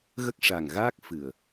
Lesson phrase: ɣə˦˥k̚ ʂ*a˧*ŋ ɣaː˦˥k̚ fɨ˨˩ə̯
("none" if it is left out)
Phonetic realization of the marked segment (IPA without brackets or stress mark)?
a˨˩